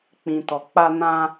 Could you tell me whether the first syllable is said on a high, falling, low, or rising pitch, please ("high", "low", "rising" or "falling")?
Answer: low